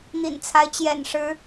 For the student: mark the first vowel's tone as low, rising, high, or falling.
low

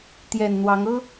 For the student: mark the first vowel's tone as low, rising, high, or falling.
low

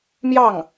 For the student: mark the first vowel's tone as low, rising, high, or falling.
falling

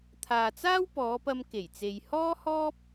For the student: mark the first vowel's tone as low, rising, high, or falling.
low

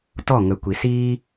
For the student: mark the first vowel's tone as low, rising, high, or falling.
falling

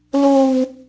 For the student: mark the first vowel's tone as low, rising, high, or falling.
low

